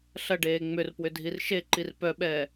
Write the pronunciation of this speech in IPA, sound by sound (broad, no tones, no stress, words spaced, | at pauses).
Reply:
ɬɐɖeː ŋ͡mʏrpwʏ dʱirʃeǃir pœɓɛː